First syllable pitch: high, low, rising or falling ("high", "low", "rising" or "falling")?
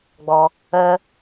low